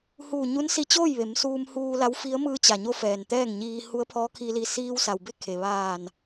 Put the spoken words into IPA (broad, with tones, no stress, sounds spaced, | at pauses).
h uː˧˩ ɲ u˧˥ n s i˧ t͡ɕ oː˥˨ j ʋ e˩˧ m s uː˧ m h uː˧ l a˧˥ w f i˧˥ ə̯ m ɯː˧ t͡ɕ a˩ ɲ o˧ f ɛː˩ n t̪ ɛː˥˨ ŋ ɲ iː˧ h u˧˥ ə̯ pʰ ɔː˧˥ kʰ i˧ l i˧ s iː˧ w s a˩ w b e˥˨ kʰ e˩ ʋ aː˧˩ n